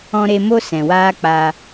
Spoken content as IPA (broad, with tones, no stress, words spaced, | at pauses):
ɔ̃˧ɾe˧mo˦ sɛ̃˨waː˦k͡paː˧